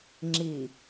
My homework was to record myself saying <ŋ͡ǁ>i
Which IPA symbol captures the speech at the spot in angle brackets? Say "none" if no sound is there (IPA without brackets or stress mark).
ŋ͡ǁ